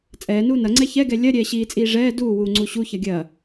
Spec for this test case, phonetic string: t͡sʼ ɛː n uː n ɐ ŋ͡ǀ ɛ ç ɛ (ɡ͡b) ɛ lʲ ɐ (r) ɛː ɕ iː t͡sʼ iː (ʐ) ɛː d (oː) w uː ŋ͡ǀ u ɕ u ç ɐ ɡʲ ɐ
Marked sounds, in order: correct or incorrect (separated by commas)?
incorrect, incorrect, correct, incorrect